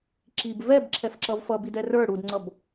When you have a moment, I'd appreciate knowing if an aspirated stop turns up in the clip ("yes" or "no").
yes